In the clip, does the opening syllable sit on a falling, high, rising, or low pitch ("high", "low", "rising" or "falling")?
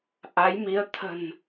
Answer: rising